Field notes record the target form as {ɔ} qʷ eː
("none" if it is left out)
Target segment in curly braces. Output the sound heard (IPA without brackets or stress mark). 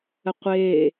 ə